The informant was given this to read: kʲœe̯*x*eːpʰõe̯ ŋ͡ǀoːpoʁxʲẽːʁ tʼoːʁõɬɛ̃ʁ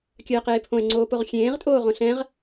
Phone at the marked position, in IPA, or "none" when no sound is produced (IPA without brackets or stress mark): q